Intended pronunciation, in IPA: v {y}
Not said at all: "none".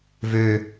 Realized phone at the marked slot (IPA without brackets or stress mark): ø